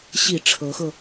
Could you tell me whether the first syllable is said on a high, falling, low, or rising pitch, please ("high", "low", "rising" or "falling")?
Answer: low